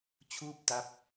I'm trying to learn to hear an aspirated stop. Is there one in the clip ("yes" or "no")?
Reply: yes